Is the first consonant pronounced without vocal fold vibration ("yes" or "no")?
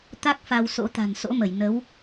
yes